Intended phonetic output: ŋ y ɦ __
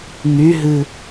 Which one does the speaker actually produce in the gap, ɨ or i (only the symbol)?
ɨ